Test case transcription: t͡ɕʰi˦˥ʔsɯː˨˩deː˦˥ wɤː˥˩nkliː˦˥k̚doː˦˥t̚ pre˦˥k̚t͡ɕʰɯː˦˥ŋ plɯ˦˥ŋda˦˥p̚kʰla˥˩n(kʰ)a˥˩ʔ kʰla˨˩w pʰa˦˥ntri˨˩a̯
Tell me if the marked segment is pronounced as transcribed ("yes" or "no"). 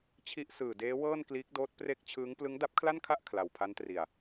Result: yes